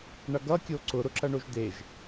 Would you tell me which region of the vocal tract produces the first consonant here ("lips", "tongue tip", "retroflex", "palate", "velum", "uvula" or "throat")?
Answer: retroflex